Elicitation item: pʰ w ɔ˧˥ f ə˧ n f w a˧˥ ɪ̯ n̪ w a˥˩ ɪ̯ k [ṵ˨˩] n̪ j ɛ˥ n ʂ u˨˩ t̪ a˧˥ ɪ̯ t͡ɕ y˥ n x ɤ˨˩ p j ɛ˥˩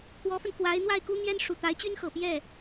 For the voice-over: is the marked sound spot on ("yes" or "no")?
no